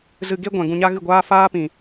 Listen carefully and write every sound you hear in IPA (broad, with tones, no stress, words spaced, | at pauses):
zɨ˧ɡe˦ ɡʷɛ̃˨ ɡũ˧ɲa˦ɣɨ˦˨ɡʷaː˦ faː˦pĩ˨